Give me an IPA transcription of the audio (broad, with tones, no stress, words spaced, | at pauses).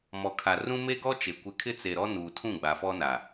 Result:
mɔ˨kʰa˨ rũ˦ me˦ɡɔ˦t͡ʃe˨ kʷɪ˦ kʰɪ˦t͡se˨ɾɔ˦ nuː˨tʰũ˦˨ɡ͡ba˨ fɔ˦na˨